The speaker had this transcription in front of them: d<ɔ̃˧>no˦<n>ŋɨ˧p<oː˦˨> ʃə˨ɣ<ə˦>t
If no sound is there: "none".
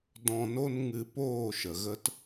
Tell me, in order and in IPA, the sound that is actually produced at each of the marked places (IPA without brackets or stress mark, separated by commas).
ɔ̃˧, n, oː˦˨, ə˦